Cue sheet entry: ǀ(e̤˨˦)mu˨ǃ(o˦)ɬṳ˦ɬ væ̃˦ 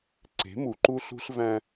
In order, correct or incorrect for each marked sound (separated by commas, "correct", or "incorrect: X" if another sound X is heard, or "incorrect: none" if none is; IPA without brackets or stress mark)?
correct, incorrect: u˦